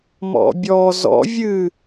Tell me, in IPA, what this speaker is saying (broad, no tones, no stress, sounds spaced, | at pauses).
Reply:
m ɔ̰ bʲ ɔ z ɔ̰ vʲ ɨ